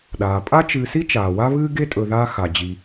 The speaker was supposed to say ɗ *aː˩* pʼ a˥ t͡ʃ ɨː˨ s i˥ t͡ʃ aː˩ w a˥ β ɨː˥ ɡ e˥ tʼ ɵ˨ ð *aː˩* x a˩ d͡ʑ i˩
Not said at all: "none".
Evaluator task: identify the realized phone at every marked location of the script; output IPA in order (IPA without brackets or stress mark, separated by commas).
aː˩, aː˦